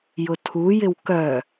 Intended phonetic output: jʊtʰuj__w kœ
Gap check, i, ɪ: ɪ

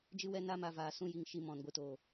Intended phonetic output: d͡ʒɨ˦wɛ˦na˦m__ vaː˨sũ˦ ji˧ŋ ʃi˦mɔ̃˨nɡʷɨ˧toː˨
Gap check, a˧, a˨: a˧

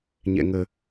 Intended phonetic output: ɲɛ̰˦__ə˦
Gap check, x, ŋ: ŋ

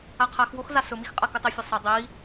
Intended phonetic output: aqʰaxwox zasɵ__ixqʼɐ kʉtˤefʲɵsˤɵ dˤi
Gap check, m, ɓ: m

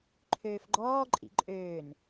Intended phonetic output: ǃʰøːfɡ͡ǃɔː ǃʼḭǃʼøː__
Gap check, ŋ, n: n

